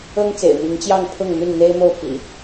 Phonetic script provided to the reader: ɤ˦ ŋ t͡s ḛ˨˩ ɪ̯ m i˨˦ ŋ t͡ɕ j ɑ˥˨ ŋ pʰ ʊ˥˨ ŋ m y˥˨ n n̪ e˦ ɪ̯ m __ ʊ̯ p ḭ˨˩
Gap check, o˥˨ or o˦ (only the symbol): o˥˨